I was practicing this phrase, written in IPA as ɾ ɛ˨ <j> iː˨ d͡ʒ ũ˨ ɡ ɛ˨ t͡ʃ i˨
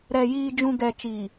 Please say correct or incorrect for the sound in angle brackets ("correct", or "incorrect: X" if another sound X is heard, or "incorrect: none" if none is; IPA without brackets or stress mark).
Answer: correct